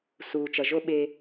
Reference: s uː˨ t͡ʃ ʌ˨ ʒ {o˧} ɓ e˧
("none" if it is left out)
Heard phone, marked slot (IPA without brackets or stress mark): o˧